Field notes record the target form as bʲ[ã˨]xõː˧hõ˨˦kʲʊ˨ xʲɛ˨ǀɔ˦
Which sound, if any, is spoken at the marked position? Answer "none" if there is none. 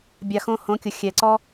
a˨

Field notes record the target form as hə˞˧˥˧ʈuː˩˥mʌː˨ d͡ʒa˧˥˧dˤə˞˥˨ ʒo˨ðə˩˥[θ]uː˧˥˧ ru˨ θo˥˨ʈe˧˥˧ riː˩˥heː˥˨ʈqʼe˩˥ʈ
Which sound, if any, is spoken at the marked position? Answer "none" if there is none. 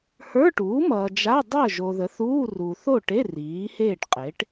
θ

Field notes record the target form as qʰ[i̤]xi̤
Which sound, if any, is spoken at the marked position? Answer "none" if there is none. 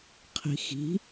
i̤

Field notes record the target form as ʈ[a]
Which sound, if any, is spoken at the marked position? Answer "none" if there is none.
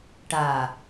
a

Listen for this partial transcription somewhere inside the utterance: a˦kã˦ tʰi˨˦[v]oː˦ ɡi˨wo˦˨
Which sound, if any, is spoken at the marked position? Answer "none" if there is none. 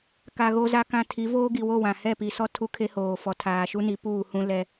v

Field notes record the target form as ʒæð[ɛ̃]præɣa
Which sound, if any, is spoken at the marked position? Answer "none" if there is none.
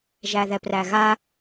ɛ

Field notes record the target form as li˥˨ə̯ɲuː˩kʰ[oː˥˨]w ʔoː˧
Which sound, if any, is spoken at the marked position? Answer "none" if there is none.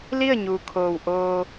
oː˩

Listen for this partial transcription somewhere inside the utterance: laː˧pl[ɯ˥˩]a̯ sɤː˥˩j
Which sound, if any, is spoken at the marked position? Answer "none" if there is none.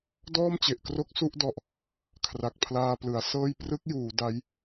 ɯ˩˦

